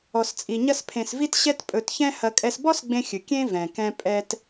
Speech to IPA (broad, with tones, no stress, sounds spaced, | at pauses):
ɔ˧ s t͡sʼ i˧ ɲ ɐ˥ s pʰ ẽ˧ s v i˥ t ɕ ɛ˥ t pʼ ɵ˧ t ç ɛ̃˥ h ɐ˧ kʼ ɛ˧ s b ɔ˥ s ɡ͡b ẽ˧ xʲ ɨ˩ kʲ ẽ˥ v ɛ̃˩ k ɛ̃˧ pʼ ɛ˧ t